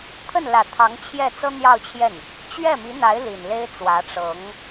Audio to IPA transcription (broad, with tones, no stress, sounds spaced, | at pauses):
t̪ʰ ə˥˩ n l ä˨˩ t̪ʰ ɑ˧˥ ŋ t͡ɕʰ j ɛ˥˩ t͡s ɤ˥ n̪ j ɑ˥˧ ʊ̯ t͡ɕʰ j ɛ˥˩ n | t͡ɕ ɥ ɛ˥˩ m i˧˥ n̪ a˧˥ ɪ̯ l i˨˩ n l e˥ ɪ̯ t͡s w ä˧˥ ʈ͡ʂ ɤ˧˥ ŋ